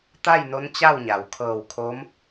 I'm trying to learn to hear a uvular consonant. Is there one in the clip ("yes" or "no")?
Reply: no